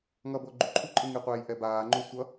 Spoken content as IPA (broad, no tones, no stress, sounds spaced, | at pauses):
ŋ ʌ b o ɡ͡ǃ u ǃʰ u ǃʼ ɯ ŋ i qʷ ɛː j ʔ ɛ b aː ŋ͡ǃ o sʷ ʌ